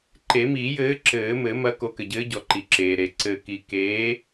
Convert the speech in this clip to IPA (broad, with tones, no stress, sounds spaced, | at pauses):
ǃ e˨˩˦ m iː˨˩˦ j ɘː˨˥ ǁ ɘː˨˩˦ m ɘ˨˩˦ m ɐ˨˥ k o˨˩˦ k ɘ˩ ɟ ɘː˨˥ ɟ ɔ˩ ǃ i˩ ǁ eː˩ ɾ e˨˩˦ ǀ ɘ˨˩˦ k i˨˥ k eː˨˥